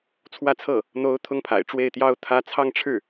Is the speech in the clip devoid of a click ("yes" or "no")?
yes